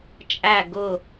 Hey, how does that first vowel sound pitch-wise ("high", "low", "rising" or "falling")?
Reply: falling